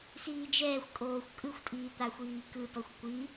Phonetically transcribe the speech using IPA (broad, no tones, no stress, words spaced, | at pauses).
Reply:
siːd͡ʒɛːxʷkʼoːxʷ kʼɯxʷtʼiː t̪axʷiːkɯtɔxʷ kʷi